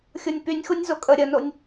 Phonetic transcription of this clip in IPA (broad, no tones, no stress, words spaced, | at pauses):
xʲonʲpynʲxunʲ zokʼə ɾʲənonʲ